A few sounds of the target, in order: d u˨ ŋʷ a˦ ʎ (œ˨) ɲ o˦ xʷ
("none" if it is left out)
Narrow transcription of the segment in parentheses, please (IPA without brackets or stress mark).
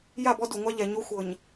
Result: ɛ˨